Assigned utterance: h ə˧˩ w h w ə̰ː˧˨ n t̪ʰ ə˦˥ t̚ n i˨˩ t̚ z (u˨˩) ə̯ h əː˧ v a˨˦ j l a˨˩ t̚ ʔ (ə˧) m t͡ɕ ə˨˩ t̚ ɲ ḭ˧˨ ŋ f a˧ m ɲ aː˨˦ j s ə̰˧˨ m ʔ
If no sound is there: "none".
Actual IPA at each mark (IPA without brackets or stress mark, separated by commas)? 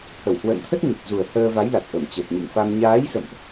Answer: u˨˩, ə˧˩